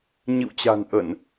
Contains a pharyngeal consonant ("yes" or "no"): no